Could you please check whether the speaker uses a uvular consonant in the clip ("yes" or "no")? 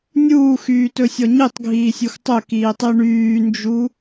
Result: no